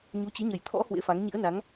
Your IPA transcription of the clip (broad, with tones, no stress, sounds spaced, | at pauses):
ɲ u˨˦ t͡ɕ i˨˦ ɲ ə˨˩ j t̪ʰ ɔ̰˧˥ h w ḛ˧˥ f a˨˦ ŋ ɲ ḭ˧˥ ə̯ n a˨˦ ŋ